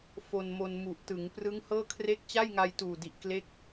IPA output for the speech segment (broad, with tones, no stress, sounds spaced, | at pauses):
f o˧ n m o˧ n m u˨˩ ʔ t ɯ˩˦ ŋ p r ɯ˦˥ ŋ h ɤː˥˩ kʰ r e˦˥ k̚ t͡ɕ a˥˩ j ŋ a˧ j t uː˨˩ d i˨˩ ʔ k l e˦˥ k̚